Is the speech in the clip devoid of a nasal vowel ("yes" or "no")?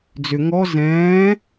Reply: no